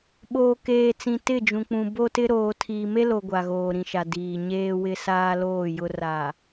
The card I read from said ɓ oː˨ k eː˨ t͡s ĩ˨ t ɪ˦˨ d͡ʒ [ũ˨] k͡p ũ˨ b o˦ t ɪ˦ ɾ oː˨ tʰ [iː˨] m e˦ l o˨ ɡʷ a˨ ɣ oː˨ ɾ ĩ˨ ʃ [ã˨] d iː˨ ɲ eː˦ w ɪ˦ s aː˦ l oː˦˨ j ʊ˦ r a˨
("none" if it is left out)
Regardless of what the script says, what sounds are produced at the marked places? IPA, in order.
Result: ũ˨, iː˨, a˨

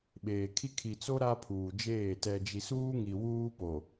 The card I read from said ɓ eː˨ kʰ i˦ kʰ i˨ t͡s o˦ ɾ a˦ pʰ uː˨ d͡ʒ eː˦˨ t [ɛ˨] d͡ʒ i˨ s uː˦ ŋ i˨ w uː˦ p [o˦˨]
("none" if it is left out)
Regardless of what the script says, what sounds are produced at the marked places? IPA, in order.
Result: ɛ˨, o˨

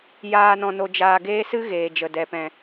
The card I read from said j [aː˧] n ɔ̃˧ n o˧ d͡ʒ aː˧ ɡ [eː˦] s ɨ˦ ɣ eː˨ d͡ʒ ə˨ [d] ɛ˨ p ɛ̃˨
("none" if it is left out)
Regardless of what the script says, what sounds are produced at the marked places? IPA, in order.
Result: aː˦, eː˦, d

